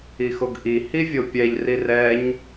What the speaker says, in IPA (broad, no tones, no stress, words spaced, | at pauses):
ixoɡʔi hivʲopʲɛʎ rirɛɲ